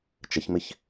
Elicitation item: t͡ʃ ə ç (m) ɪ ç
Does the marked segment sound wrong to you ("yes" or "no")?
no